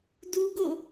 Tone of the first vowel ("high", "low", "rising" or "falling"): high